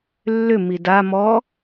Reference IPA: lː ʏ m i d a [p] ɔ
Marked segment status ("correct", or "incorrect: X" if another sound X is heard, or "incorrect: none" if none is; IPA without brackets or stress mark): incorrect: m